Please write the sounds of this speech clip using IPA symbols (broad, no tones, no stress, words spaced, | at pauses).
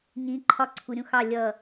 ɲĩ ǃʰɒǀʰu ɾʲũxɑ lʲʌ